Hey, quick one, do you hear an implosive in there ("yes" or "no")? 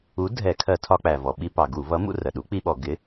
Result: yes